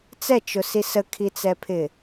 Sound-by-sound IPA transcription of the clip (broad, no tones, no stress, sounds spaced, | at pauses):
t͡s ɛ t͡ʃ ʊ s i s ə kʰ i t͡s ɛ pʰ ɪ